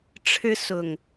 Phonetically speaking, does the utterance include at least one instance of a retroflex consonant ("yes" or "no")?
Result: yes